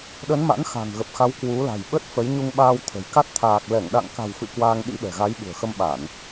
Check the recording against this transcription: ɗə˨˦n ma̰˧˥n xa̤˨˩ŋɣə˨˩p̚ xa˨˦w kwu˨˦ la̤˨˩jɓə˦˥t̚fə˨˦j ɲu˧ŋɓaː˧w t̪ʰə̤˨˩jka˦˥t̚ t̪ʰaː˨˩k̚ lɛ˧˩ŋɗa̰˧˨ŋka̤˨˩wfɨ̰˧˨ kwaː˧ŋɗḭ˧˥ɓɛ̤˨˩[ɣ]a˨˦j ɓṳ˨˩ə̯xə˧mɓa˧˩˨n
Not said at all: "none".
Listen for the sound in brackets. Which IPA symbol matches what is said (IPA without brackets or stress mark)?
ɣ